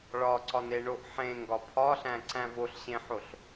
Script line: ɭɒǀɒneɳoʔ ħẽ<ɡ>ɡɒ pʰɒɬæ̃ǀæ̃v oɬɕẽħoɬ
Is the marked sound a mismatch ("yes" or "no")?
yes